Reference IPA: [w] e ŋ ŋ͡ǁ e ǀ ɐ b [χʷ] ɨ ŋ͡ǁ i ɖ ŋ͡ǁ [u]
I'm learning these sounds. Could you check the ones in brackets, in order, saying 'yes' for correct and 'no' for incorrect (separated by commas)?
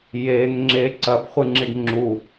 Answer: no, yes, yes